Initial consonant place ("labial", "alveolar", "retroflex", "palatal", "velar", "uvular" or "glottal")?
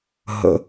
glottal